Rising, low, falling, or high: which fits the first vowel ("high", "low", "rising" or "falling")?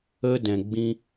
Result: high